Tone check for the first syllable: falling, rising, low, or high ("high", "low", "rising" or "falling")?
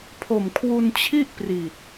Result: low